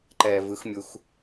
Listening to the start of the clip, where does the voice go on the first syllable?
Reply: low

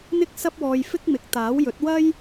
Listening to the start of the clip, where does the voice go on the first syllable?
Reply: high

